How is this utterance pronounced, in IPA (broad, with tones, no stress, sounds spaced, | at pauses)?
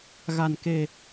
ɣ a˨˩ n k e˨˩